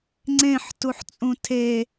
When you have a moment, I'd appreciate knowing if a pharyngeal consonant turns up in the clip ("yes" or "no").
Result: yes